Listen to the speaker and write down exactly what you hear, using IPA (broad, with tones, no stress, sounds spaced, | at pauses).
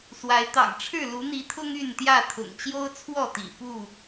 s w a˨˦ ɪ̯ t̪ ɑ̰˨˩ ŋ ʈ͡ʂʰ ɻ̩˥˨ l u˨˦ n̪ i˨˦ t̪ʰ ʊ˦ ŋ y˥˨ n t̪ j ä˥˨ t̪ʰ ʊ̰˨˩ ŋ t͡ɕ j o˦ ʊ̯ t͡sʰ w ɔ˥˨ t̪ ḭ˨˩ f u˥˨